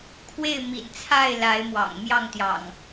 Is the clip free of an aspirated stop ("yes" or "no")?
no